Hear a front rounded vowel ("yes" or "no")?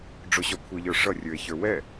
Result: no